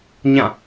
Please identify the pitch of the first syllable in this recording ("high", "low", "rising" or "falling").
falling